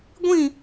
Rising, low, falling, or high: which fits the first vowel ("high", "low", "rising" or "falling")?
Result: falling